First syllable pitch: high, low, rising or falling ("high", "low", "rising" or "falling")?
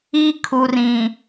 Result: high